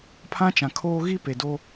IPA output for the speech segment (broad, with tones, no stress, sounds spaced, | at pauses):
pʰ ã˦ t͡ʃ ã˨ kʰ oː˦ ɣ i˦ p e˨ d o˦